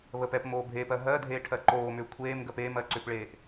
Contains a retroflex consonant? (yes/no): yes